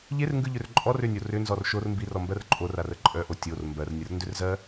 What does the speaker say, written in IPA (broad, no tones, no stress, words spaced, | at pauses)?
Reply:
ʎerŋɡɯʎʏr ǃʼɔr ʏnʲo rʏnzɔr ʃor mbirɔmbɜr ǃʼorarə ǃʼœʔo tʲor mbɜrnʲərndʏrzɜ